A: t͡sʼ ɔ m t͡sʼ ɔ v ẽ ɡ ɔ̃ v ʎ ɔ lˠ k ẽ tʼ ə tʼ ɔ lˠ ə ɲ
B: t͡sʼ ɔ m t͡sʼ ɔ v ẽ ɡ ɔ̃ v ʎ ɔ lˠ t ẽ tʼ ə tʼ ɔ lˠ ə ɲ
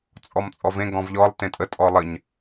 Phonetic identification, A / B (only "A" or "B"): B